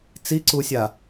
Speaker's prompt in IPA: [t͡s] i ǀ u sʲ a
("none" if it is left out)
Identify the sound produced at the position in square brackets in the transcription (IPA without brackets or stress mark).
t͡s